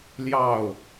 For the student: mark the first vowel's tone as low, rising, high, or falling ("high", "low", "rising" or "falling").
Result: falling